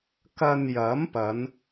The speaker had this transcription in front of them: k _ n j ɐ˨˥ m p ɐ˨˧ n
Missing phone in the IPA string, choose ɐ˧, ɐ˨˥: ɐ˧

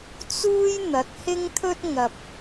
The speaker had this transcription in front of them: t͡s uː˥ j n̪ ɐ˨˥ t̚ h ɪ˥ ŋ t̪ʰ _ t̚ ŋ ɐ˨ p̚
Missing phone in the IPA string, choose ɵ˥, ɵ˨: ɵ˥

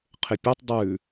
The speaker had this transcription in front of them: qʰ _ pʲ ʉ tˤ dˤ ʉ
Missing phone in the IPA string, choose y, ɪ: ɪ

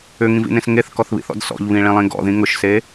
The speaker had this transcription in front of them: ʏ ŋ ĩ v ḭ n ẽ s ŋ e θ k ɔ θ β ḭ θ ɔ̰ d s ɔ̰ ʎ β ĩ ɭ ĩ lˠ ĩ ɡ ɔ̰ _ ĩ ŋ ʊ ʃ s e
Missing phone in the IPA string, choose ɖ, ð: ð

